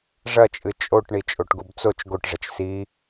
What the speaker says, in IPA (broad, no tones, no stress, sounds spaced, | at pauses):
ʐ ɐ t͡ʃʼ ɨ t͡ʃʼ o ʈ ɳ i t͡ʃʼ o ʈ ɡ u b t͡s o t͡ʃ ɡ o ʈ ʐ ɐ t͡ʃ s i